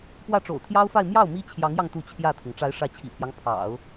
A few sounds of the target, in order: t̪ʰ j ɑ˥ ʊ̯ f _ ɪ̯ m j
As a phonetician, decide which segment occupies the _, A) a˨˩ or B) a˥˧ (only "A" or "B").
B